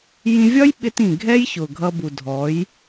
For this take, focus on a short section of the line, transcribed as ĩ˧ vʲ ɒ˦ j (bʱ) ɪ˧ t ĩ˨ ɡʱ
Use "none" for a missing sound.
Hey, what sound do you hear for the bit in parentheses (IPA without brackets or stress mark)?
ɓ